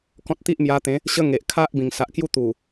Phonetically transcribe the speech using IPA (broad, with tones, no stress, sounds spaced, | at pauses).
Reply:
k ɔ̃˦ t̚ t̪ i˦ ʔ m j a˧ t̪ ẽ˨˦ | ɕ ə˦ ŋ e˨ ʔ kʰ a˦ ʔ b ĩ˨˩ ŋ s a˨ ʔ k j u˦ t̪ u˨˩